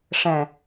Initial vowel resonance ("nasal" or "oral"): nasal